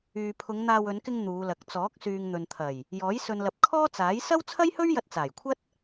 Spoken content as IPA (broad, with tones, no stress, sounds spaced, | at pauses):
yː˨ pʰ ʊ˨˧ ŋ n̪ aː˧ w ɵ˨˧ n k ɪ˧ ŋ n̪ uː˨˧ l ɐ˨ k̚ t͡s ɔː˨˥ k̚ s yː˨ ŋ n̪ ɵ˨ n t̪ʰ ɐ˨˩ j | j ɔː˨˥ j s ɵ˨ n l ɐ˨ p̚ kʰ ɔː˥ t͡s aː˨˥ j s ɐ˥ w t͡sʰ ɐ˥ j h ɵ˥ ɥ j ɐ˧ t̚ t͡s aː˨˩ j kʷʰ ɐ˥ t̚